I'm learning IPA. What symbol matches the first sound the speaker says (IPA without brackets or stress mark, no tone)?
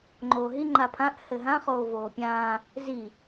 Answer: ŋ͡ǃ